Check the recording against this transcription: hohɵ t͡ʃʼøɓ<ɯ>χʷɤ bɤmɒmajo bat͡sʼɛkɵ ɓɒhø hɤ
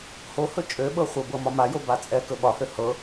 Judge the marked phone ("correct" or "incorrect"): incorrect